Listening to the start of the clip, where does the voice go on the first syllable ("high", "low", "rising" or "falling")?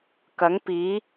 rising